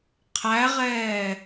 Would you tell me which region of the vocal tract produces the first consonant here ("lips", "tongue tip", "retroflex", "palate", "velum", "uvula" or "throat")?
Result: uvula